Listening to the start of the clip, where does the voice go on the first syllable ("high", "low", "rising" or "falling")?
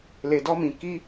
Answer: low